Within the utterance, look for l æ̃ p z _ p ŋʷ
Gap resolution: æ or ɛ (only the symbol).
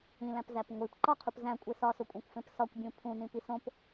æ